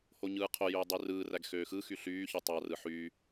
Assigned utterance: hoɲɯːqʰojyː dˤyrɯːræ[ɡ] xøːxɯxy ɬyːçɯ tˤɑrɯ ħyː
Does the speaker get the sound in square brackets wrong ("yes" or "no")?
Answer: no